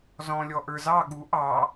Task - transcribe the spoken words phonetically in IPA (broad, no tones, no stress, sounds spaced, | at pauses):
z ɔ̃ lʲ ɔ ʔ ə˞ z ɑ ɠ u ʔ ɑ